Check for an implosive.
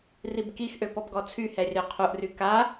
absent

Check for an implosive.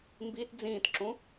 absent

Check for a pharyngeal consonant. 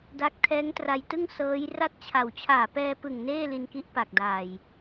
absent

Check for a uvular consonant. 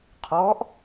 present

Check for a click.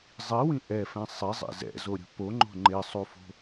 present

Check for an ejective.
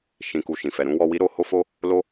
absent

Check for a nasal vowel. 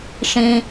present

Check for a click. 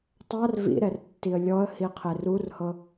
absent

